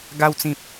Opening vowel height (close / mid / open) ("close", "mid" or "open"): open